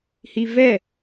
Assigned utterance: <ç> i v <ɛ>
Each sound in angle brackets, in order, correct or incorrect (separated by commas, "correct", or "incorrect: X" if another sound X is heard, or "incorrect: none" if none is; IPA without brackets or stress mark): incorrect: h, correct